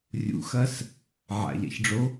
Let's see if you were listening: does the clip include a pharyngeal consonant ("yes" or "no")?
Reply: yes